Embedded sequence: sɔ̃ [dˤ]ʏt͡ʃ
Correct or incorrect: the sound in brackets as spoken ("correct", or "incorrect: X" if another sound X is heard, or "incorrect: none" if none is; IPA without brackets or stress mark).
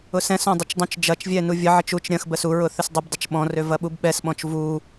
correct